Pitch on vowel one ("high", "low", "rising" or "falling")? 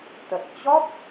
low